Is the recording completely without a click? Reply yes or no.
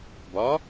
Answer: yes